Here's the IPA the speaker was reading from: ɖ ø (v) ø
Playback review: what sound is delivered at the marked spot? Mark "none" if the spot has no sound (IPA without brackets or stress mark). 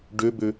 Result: b